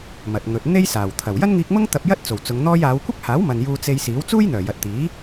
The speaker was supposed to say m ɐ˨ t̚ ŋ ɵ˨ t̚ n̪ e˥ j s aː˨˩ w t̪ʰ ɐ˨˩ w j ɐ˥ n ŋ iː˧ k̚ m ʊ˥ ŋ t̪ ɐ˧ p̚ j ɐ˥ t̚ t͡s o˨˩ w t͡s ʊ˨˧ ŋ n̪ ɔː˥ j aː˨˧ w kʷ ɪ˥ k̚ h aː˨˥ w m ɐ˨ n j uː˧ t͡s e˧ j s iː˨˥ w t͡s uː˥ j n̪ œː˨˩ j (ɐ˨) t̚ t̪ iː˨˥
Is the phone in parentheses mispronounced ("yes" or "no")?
no